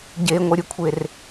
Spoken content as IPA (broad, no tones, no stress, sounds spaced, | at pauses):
ɟ e ŋʷ ʌ ɾʲ ɯ kʷʰ e r